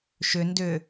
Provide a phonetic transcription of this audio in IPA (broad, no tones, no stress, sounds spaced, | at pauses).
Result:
ʃ ʏ n d ʏ